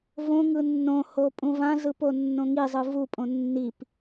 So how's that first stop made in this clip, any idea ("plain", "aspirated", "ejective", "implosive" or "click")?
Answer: ejective